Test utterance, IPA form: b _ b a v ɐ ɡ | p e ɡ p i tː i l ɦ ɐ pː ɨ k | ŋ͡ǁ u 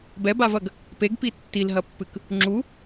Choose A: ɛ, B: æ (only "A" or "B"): A